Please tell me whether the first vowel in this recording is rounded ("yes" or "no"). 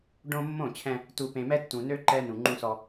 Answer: yes